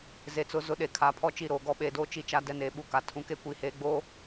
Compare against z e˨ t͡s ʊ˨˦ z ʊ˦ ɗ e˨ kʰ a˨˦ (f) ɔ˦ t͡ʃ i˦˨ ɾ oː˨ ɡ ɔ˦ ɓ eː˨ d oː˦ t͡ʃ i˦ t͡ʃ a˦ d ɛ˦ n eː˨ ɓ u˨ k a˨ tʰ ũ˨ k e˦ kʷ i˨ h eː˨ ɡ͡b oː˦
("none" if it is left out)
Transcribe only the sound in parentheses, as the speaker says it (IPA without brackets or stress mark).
pʰ